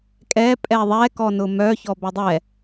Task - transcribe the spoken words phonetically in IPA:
kʼ ɛ pʼ ɛ ðˤ ɛ k ɔ n ʊ m œ ç ɔ b ɛ dˤ ɛ

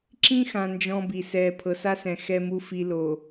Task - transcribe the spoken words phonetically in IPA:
ǁ ĩ˦ x ã˨ n d͡ʒ ɔ̃˦ b i˨ s ɛː˨ pʰ ɤ˨ s a˦ s ɛ̃˨ x ɛ˦ m u˦ f i˨ l o˨

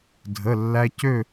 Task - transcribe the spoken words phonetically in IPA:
dʱ ə˧˥˧ lː æ˥ c ø˥˧

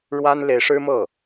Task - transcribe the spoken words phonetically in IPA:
ɻ w a˥ n l e˧˥ ɪ̯ ʂ ɻ̩˥ m ɤ˥˩

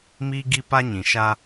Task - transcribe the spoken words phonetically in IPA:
m iː˦ ɡ i˦ p a˦ ɲ ĩ˨ ʃ a˦

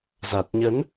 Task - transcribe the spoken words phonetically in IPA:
z a˨˩ t̚ ɲ ə˨˦ n

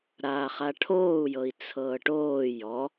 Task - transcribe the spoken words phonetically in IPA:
ɾ aː χ a ʈʰ oː u̯ j ɤ i̯ t͡sʰ ɤː ʈ oː j ɔ

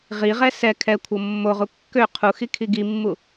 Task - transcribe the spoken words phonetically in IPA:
ʁ i ʁ ɛ s ɛ kʰ ɛ kʷʰ ɤ mː o ʁ u kː ø qʰ u x i kʰ i ɡ i mː u

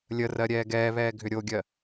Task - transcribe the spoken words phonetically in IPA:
lʲ ə r ɜ ɾʲ ɛː ɡ ɛː β ɛː ɡʱ ʏ ɾʲ o ɡʲ ɜ

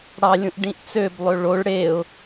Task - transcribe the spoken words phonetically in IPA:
ɽ ɑ lʲ ũ ʔ ɖ ĩ ʔ t͡s ø b lˠ ø ɭ o ɭ ɽ e ʊ̯

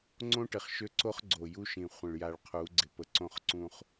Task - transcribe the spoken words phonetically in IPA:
ŋ͡ǀ õ˦ ʈ ɪ˨ χ ʃ ø˦ ǀ o˦ χ ɡ͡ǀ o˨ j u˦ ʃ ĩ˨ χʷ ə̃˨ ɭ j a˨ ɭ qʰ u˨˦ ɡ͡ǀ ɪ˨ p ə˨ ǀ õ˦˨ χ ǀ ũ˦ χ

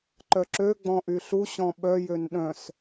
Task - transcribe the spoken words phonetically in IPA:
ǃ œ ǁ ø ɡ͡b ɔ̃ ʔ y ɬ u ɕ ɔ̃ ɓ œ j ø n ɗ œ̃ s

